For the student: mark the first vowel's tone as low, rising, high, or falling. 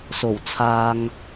low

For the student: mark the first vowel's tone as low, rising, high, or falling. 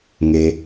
low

